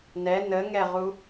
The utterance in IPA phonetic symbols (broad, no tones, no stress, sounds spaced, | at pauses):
n ɛ n ə ŋ ɛ ʁ u